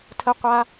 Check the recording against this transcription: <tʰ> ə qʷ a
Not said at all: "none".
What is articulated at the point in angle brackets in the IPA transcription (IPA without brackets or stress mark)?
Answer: tʰ